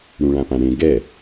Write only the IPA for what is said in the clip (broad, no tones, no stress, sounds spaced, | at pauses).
ɽ ũ ɭ ã p ã ɽ ẽ ɡ ɛ